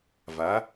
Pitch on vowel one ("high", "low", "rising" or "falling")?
rising